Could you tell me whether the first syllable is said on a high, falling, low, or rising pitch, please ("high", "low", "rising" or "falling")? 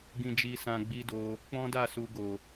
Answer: low